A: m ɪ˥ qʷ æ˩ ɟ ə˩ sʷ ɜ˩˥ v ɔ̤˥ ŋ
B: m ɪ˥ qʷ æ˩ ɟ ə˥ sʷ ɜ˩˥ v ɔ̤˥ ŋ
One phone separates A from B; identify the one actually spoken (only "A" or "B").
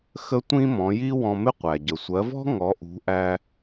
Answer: A